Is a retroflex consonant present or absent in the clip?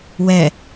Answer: absent